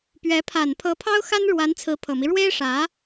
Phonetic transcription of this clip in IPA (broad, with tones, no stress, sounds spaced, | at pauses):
p ɥ ɛ˧˥ pʰ a˨˩ n pʰ ɤ˧˥ pʰ ɑ˥ ʊ̯ x a˥ n ɻ w a˧˥ n t͡sʰ ɹ̩˧˥ pʰ ɤ˨˩ m i˦ ɻ w e˥ ɪ̯ ʂ ä˧˥